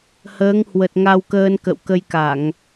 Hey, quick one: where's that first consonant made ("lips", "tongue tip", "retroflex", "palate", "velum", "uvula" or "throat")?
throat